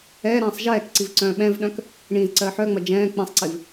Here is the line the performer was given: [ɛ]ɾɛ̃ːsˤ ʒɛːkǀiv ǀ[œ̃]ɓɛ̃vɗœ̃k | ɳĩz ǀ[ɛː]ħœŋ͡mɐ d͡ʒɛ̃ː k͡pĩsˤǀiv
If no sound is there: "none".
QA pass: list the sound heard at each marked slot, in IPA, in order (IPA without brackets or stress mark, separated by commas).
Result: ɛː, œ̃ː, ɜː